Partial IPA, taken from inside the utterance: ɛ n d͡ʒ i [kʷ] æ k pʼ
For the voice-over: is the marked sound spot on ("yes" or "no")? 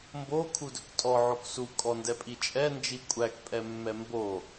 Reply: no